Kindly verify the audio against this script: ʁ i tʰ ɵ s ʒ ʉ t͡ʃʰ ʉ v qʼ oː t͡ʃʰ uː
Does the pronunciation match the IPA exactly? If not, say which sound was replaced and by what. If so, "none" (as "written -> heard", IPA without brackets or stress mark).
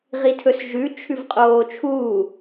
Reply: none